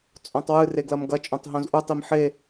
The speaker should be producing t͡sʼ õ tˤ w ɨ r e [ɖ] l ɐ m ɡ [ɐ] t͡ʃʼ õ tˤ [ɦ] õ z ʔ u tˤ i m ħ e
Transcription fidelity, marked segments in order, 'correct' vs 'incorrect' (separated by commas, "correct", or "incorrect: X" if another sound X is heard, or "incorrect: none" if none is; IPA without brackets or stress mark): incorrect: ɡ, correct, correct